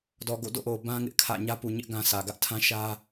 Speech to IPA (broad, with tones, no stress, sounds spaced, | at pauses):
d ɔ˨ ɡ o̰˦˨ d o̰˦˨ ʔ o˨ b ã˦ ŋ ɪ˦ ʔ kʰ ä̰˦˨ ɲ ä˦ p u˨ ɲ ɪ˦ ʔ ɡ ã˦ sʰ ä˨ ɡ ä˦ ʔ tʰ ã˦ ʃ ä˦